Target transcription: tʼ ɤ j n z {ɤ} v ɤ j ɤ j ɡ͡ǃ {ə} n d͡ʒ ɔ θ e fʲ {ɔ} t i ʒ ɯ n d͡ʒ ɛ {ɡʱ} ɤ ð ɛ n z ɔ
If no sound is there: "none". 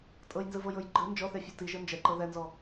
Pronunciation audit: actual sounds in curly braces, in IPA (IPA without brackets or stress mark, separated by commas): ɯ, ɯ, ɔ, ǃ